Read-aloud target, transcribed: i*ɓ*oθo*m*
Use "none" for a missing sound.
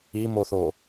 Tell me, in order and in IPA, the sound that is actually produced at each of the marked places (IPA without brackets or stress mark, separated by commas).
m, none